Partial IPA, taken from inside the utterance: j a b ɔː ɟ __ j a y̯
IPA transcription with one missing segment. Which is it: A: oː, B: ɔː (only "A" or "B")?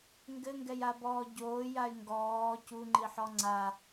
A